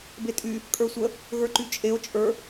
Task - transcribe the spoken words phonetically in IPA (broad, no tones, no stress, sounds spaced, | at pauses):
b e tʼ y | kʼ ə˞ sʷ ə | ɣ ə˞ ǃ y t͡ʃʼ e o̯ t͡ʃʼ ə˞